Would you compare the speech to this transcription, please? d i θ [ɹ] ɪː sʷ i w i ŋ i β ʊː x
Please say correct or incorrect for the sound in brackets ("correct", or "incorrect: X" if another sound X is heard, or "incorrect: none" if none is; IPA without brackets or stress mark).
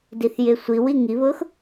incorrect: j